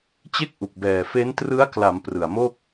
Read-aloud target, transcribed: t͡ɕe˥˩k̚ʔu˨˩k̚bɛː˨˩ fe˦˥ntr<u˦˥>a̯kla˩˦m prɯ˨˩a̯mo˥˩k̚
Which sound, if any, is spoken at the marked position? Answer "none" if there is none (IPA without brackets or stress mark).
ɯ˦˥